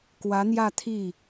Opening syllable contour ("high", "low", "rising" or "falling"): rising